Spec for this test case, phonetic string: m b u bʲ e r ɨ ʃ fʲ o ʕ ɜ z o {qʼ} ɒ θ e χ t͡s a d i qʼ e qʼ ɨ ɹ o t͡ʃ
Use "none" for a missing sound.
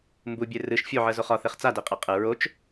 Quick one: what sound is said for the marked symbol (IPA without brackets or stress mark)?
χ